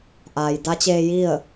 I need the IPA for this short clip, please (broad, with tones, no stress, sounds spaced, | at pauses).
ʔ aː˩ j d a˧˥ t͡ɕ eː˧ j i˥˨ ə̯